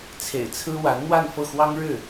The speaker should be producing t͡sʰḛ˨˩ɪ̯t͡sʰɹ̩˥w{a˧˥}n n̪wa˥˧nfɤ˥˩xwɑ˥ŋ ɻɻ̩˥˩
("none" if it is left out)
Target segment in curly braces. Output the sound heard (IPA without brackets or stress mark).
a˧˥